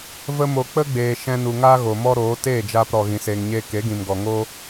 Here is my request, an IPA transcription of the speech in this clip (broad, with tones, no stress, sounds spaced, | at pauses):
v ə˦ m o˧ k͡p ə˦ ɡ͡b eː˨ ʃ ɛ̃˧ n u˨ ŋ aː˦ ɣ o˨ m ɔ˦ ɾ oː˨˦ t eː˦˨ d͡ʒ aː˧ p ɾ ɔ˨ ɣ ĩ˨ s eː˨ ŋ ɲ eː˧ k e˨˦ ɡ ĩ˨ m ɡ ɔ˨ ŋ oː˦